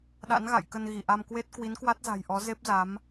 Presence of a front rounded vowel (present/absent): absent